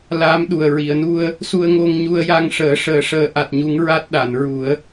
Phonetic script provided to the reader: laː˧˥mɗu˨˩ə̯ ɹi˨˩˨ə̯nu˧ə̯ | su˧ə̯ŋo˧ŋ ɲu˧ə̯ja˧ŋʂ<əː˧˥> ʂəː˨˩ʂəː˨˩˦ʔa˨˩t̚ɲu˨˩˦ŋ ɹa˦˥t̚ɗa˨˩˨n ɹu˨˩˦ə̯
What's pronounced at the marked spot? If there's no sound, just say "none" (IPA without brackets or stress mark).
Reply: əː˨˩˦